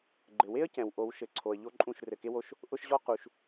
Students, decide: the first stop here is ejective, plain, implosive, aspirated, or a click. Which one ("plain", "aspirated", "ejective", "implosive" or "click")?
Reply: click